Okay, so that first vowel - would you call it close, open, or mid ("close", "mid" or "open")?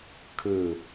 close